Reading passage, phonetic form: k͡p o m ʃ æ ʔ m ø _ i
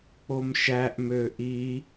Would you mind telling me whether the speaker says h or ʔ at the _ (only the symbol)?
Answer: ʔ